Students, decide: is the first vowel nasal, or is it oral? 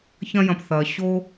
nasal